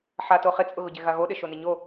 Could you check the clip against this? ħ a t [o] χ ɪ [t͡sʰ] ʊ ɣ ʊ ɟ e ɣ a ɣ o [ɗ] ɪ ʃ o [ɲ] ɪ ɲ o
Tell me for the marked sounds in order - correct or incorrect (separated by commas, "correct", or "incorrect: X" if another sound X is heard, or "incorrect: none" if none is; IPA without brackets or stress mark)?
correct, incorrect: t͡sʼ, correct, incorrect: n